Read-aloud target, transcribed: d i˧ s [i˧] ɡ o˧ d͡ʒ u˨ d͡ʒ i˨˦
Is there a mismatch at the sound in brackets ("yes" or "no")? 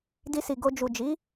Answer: yes